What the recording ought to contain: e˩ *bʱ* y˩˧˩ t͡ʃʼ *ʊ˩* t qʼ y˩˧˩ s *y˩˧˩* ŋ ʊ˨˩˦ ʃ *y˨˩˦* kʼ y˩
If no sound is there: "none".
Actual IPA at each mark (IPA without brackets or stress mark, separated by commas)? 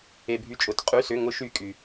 bʱ, ʊ˩, ʏ˩˧˩, y˨˩˦